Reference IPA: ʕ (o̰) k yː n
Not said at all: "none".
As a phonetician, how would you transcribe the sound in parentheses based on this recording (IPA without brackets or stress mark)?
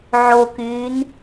o